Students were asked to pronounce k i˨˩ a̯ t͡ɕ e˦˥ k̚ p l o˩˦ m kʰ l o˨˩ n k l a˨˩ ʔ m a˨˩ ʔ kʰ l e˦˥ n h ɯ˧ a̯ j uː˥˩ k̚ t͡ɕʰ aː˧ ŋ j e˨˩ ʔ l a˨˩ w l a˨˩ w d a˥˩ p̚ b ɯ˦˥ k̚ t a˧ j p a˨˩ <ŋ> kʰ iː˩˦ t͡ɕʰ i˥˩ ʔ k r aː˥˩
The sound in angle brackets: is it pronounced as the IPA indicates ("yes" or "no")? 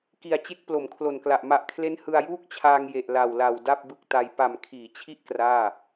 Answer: no